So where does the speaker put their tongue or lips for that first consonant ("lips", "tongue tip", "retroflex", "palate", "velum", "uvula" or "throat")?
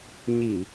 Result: palate